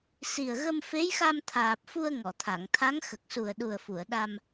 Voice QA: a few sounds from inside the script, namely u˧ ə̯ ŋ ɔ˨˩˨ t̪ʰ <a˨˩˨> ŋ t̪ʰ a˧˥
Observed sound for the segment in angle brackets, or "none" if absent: a˨˩˨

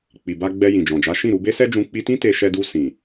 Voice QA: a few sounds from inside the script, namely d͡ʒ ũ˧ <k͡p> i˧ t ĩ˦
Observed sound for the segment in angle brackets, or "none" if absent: k͡p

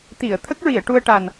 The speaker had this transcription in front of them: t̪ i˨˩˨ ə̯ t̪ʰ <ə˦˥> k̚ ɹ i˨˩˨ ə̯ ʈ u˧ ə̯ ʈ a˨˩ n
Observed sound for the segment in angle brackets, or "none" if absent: ə˦˥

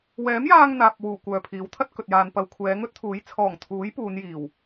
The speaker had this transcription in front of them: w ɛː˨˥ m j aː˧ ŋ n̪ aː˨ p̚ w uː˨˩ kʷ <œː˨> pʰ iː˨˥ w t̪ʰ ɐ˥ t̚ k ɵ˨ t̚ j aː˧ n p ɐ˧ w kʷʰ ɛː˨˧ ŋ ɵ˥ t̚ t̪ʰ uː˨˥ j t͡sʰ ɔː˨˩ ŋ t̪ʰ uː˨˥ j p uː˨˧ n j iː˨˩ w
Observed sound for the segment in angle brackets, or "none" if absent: œː˨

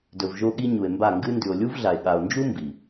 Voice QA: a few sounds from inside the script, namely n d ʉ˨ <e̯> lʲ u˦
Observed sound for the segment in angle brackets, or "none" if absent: o̯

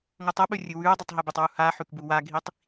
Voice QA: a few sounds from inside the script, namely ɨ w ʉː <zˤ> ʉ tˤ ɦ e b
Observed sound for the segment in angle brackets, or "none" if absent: dˤ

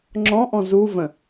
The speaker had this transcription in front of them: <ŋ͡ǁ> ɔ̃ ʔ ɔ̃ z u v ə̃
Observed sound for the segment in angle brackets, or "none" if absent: ŋ͡ǁ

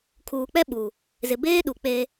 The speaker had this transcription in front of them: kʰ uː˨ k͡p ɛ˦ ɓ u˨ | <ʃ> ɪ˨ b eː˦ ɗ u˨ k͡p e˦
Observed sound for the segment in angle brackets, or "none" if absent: z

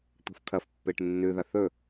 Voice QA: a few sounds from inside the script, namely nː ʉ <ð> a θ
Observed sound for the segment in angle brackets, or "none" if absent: ð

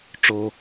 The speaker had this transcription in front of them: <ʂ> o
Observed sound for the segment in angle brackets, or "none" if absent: ʈ͡ʂ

